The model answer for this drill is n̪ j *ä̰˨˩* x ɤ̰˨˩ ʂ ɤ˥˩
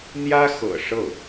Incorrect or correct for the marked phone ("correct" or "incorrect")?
incorrect